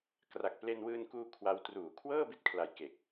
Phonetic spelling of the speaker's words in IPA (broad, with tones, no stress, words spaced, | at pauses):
kra˨˩k̚ple˧nwɯː˧nkuː˧ kʰwa˦˥w truː˩˦kʰwɤː˥˩bi˥˩t̚ kʰla˧jke˨˩k̚